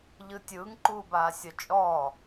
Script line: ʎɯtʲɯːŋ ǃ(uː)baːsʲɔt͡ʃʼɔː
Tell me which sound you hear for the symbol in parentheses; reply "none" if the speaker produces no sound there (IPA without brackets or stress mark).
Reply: uː